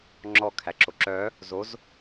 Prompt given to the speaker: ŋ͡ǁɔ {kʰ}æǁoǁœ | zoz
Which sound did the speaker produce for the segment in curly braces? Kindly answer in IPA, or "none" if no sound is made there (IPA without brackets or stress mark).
kʰ